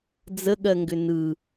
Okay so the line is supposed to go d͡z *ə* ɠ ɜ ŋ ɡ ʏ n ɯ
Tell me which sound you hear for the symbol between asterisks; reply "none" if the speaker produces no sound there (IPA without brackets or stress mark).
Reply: ə